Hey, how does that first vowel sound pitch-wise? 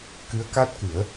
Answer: rising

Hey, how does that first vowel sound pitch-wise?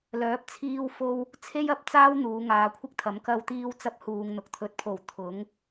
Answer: rising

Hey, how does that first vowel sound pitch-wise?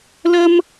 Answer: high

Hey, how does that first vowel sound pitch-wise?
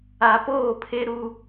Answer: low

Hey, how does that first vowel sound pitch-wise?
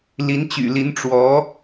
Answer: rising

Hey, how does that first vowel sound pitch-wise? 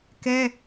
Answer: high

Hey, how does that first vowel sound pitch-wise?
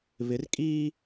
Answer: rising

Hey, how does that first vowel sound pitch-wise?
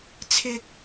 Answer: low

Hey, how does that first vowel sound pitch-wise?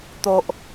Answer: low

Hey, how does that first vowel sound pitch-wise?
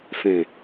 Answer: low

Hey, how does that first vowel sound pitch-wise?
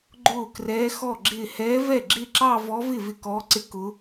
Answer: falling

